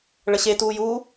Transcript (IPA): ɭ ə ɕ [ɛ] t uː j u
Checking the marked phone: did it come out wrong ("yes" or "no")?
yes